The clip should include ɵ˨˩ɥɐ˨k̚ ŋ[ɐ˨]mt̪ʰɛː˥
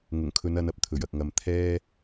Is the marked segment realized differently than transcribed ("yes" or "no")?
no